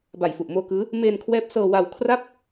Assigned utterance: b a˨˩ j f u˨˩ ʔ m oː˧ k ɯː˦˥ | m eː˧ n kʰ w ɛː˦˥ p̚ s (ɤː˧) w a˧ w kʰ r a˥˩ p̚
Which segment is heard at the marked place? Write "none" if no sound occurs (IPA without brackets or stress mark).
ɤː˧